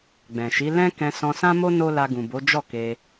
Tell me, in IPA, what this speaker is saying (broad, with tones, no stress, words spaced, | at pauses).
ɡ͡bɛ̃˨ʃi˨˦ lɛ̃˦ kɛ̃˧sɔ̃˧sã˦mo˦ no˦ la˧ɡũ˨bo˨˦ d͡ʒɔ˦˨ ke˧